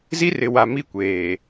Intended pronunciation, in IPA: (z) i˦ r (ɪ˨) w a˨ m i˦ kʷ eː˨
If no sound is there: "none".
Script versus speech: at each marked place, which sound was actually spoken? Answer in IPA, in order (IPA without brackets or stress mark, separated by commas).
z, ɪ˨